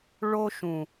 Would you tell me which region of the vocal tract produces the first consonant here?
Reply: retroflex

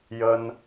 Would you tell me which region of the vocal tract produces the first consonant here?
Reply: palate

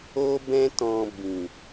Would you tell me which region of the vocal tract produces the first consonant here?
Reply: lips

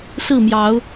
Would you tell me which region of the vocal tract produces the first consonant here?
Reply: tongue tip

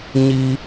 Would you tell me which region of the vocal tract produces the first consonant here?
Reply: palate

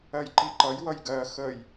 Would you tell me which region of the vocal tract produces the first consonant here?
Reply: palate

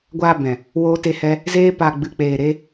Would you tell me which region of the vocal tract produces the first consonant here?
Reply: velum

